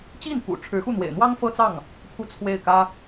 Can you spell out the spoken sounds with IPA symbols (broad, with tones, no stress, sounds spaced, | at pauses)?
t͡ɕ i˥˩ n k ṵ˨˩ ʈ͡ʂʰ ɻ̩˧˥ x u˥˩ n̪ w ḛ˨˩ ɪ̯ n̪ w ɑ˥ ŋ f ɤ˥ t͡s ɑ˥˩ ŋ | pʰ u˥˧ t͡sʰ w e˥˩ ɪ̯ k ä˥